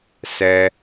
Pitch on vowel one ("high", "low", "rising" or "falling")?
low